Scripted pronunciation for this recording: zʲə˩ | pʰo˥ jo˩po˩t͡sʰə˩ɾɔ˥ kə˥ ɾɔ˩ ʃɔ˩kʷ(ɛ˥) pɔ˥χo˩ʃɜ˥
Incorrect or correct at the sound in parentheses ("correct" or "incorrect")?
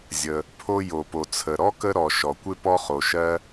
incorrect